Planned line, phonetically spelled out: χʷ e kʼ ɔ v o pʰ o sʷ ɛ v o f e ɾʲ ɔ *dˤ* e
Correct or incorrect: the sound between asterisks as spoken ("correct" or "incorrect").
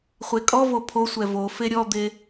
incorrect